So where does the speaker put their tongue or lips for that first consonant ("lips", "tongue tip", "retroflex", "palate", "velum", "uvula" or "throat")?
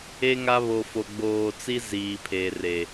velum